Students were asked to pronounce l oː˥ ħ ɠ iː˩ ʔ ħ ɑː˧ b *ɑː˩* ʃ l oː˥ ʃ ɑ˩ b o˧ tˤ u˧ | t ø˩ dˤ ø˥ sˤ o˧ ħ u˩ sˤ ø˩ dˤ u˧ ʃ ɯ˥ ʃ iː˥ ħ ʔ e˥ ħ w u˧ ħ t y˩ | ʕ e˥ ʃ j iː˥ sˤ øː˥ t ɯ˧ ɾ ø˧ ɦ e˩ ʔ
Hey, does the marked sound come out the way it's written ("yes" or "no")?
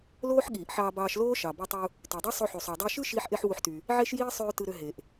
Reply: no